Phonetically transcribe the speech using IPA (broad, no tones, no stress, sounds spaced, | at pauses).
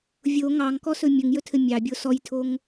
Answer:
vʲ o ŋ ɑ ŋ k ɔ s ɵ mʲ ɵ ŋ j ɵ tʰ ɘ mʲ ɑ bʲ o s ɔ j tʰ o ŋ